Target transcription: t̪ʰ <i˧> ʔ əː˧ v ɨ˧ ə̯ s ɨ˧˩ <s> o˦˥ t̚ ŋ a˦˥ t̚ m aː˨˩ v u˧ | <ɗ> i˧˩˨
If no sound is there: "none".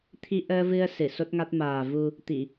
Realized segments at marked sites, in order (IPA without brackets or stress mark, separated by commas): i˧, s, t̪